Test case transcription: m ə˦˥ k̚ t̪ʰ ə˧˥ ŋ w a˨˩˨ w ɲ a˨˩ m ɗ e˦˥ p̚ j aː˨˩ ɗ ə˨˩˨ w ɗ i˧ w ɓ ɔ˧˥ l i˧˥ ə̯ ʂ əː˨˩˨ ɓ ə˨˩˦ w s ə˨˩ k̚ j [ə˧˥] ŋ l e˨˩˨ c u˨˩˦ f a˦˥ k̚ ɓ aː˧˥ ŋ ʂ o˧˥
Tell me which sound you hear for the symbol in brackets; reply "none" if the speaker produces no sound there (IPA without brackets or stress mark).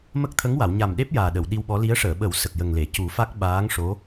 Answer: ə˨˩